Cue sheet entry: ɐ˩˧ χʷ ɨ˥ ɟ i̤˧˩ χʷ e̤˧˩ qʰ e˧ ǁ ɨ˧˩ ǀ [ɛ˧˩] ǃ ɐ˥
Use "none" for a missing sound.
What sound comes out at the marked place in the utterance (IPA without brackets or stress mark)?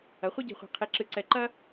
ɛ˧˩